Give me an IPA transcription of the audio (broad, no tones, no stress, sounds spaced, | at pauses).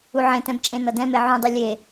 u ʕ ẽ t ɛ̃ b t͡ʃʼ ẽ n ʌ d ɛ̃ m e ʕ ũ dˤ i lʲ e